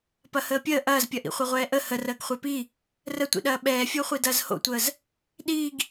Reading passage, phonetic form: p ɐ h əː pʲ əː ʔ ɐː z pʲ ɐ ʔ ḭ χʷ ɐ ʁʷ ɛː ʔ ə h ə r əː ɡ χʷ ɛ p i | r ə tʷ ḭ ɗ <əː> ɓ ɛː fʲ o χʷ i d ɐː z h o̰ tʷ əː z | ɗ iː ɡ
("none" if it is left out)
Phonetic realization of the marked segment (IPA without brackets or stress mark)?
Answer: ɐː